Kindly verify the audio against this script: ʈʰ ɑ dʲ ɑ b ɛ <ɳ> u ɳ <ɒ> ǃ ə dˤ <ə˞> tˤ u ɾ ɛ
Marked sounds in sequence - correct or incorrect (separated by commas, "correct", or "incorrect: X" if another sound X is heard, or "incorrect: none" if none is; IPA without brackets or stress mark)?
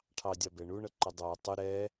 correct, incorrect: ʌ, correct